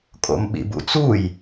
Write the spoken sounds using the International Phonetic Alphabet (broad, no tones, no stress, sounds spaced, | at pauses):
kʼ o̰ m ɓ ḭ b ṵ t͡s u j